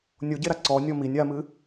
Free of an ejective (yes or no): yes